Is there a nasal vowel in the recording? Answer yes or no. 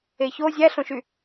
yes